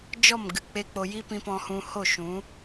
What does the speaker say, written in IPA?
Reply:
d͡ʒɔ˦˨mɡɨ˨ k͡pe˦k͡po˧ ji˦pĩ˧pɔ̃˧ hũ˧ho˦˨ʃũ˨˦

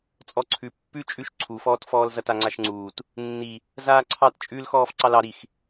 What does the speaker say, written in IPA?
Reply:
t͡sʼɔǀʰʉ pːʉ t͡ʃʼʉʃ ǀʰufɔːtfɔːl zɐtaŋ͡ǀaʃŋ͡ǀuːt | nːi | zaːǀʰɑt t͡ʃʼʉlxɔːf ǀɑlɑ ɾix

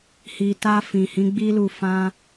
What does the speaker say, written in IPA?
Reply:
hi˨ta˧ fĩ˨hĩ˨˦ɡ͡bi˦lu˦˨ fã˧

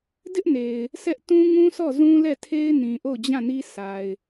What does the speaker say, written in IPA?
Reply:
dɪ˦ʔne˨ɪ̯ | sʰɛ˦ʔ tũ˦ŋũ˦sɔ˦˨ zũ˦lɛ˦˨tʰe˦ɪ̯ nĩ˨ʔo˦˨ʊ̯d͡ʑã˦˨ni˦ sʰa˨ɪ̯

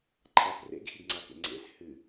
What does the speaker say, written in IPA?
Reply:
ǃʰas rḛɡxiɡŋ͡ǀakḛ ŋ͡ǀḛs hɨ

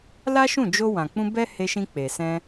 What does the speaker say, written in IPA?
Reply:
la˦ʃũ˦˨ d͡ʒo˧wã˨k͡pũ˧ bɛ˦he˧ʃĩ˧ k͡pe˨sɛ̃˧

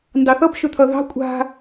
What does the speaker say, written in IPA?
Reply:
ndɑθʌb ʃɵt̪ʰʌðɑ̤ kʷʼa̤

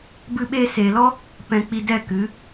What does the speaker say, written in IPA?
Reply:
bɨ˧ɓeː˧seː˨lɔ˦ | pɛ̃˨k͡pi˨ dɛ˦˨kɨ˨˦

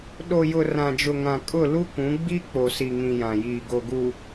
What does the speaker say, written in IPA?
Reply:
ɗo˨jʊ˨ rã˨d͡ʒʊ˨ŋã˨ kʼʊ˦˨ lu˦kũ˨˦ ɡ͡bi˦ k͡po˨si˨ŋĩ˨ jã˨jiː˨ɡo˨ɡu˨

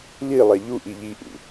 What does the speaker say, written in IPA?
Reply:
lilˠɛ ʎuʔi ʎiʔṵ

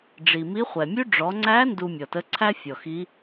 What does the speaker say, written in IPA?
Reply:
ɖ͡ʐi˩mi˧˥χʷɛ˩mʲʉ˥ ɖ͡ʐɔ˩˧ŋ͡ǀæ˧˥ ndu˧mʲɔ˩tə˧˥ ǀʰæ˥fʲɔ˩xi˧˥

